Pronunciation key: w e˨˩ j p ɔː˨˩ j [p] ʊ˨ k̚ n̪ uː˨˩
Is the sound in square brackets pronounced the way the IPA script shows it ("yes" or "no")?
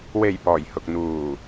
no